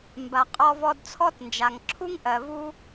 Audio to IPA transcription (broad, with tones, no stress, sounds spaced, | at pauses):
m b a˩ qʼ ɔ˧ v ɔ˧ d t͡sʰ ɔ˥ t n d͡ʒ a˩ ŋ ǁʰ u˥ ŋ ʔ ɜ˩ v u˥